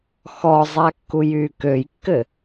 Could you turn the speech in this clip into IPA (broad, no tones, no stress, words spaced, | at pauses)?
xɔzˤakːujyː køjkːɘ